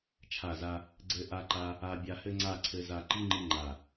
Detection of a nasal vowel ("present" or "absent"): absent